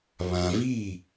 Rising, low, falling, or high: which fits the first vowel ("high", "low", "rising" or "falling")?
low